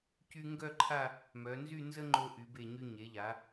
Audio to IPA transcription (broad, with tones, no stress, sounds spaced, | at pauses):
c y˧ ŋ ɡ œ˥˧ ǃʰ a˥˧ | m œ˩˧ n z y˥˧ n z ə˥ ŋ͡ǃ o˧ ʔ y˩˧ b e˧˩ ɲ y˧ ɲ e˩˧ ʎ a˩˧